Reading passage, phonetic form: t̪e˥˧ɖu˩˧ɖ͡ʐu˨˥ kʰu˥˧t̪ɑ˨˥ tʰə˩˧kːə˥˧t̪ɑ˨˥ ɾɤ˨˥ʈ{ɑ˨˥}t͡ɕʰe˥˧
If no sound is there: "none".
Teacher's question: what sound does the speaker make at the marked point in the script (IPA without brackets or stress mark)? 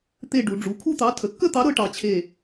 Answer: ɑ˨˥